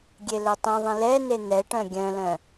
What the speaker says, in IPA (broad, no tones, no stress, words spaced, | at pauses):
ɡʲelœtˤĩðˤĩ lɛne n̪ɛʈœ̃ ɡʲœ̃lœ̃